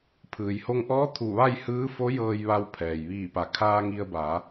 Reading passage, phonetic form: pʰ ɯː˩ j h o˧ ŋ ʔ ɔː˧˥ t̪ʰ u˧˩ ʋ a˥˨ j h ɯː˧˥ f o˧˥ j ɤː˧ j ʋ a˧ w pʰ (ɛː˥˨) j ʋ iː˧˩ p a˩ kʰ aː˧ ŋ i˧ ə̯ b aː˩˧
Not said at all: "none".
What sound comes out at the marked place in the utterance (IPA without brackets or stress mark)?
ɛː˩